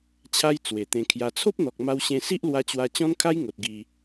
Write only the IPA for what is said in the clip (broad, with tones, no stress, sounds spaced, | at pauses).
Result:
t͡ɕʰ a˦ j t͡s w e˨˩ t̪ ẽ˧ kʰ j a˧ t͡sʰ o˦ p̚ n̪ ɔ˨ k̚ m a˧ w ɕ ẽ˧ s i˦ ʔ l w a˧ t͡ɕ w a˧ t͡ɕ ɔ̃˦ n kʰ a˦ j ŋ o˨ t̚ ɡ i˧